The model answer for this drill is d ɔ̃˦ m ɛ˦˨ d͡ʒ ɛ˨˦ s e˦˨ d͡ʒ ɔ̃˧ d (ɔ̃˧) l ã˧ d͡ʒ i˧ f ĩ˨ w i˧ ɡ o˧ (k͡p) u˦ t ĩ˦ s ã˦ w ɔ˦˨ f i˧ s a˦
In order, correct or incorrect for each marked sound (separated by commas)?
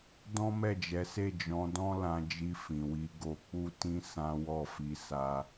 incorrect, correct